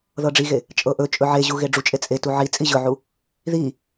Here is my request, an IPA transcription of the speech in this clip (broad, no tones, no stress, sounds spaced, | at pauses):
ð ɤ ɖ͡ʐ i ɣ e | t͡ʃʼ ɤ ʔ ɵ t͡ʃʼ ɵ ʕ e ʑ u ɣ e ɖ͡ʐ u t͡ʃʼ e t͡sʼ e t u ʕ i t͡sʼ i ʑ ɵ ʕ u | ð i